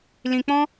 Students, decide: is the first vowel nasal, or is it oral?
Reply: nasal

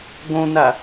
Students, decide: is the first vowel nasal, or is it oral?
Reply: nasal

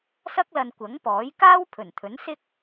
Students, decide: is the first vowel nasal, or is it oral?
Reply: oral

